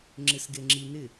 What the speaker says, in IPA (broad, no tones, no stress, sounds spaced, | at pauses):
ŋ͡ǁ ɪ s ɡ e ŋ͡ǁ i n ɪ